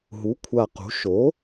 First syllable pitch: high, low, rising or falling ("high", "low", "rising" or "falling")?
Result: rising